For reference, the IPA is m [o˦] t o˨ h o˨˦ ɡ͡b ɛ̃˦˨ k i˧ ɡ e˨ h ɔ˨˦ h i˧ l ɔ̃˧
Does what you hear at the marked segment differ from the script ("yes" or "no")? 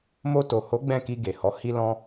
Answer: yes